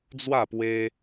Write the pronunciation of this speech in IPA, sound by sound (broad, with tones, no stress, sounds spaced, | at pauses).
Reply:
d͡z w a˥˧ p w e˦